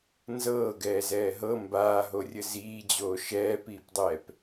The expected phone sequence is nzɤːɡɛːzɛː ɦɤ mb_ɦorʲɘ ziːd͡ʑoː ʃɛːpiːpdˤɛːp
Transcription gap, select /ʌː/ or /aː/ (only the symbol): aː